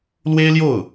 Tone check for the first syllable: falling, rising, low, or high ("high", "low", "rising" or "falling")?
high